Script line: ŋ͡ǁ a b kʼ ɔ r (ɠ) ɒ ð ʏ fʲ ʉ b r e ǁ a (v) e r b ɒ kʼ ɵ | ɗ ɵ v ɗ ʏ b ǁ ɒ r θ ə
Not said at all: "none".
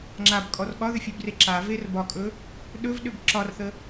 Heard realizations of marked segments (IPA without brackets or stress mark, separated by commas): ɠ, v